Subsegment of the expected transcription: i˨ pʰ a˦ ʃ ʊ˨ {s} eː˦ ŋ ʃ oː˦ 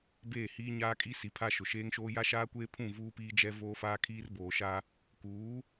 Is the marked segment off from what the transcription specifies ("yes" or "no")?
yes